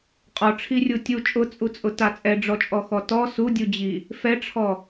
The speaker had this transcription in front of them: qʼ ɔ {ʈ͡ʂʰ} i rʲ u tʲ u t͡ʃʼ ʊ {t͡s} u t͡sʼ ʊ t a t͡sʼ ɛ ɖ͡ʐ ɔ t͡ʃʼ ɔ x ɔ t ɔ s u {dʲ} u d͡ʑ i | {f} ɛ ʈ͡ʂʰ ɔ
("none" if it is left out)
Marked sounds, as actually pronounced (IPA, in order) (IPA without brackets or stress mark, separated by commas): ʈ͡ʂʰ, t͡sʼ, dʲ, f